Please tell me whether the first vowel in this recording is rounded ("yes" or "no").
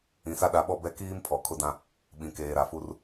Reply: no